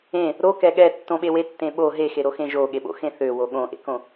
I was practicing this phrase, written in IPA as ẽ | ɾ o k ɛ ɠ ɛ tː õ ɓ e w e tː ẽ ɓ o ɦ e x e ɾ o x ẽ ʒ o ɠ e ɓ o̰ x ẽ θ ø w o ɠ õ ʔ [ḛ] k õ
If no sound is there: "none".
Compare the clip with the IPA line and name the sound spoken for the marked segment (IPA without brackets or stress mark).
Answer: ḛ